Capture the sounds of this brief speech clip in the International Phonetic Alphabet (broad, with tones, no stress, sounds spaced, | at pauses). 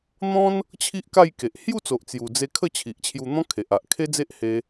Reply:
n̪ ɔ̃˦ n | t͡ɕʰ i˦ ʔ k a˥˧ j k e˨ ʔ h j u˥˧ t͡s o˨ ʔ t͡s j u˨˩ d͡z e˧ kʰ ə˥˧ t͡ɕʰ i˨ ʔ t͡ɕʰ j u˧ n̪ ɔ̃˦ kʰ e˨ ʔ a˨ ʔ kʰ e˦ d͡z e˦ ʔ h e˧